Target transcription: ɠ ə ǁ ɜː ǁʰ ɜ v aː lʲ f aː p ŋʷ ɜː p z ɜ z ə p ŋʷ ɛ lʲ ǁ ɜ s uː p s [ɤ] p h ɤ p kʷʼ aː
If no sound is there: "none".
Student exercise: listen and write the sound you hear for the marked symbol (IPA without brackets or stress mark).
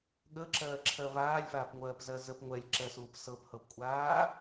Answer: ɤ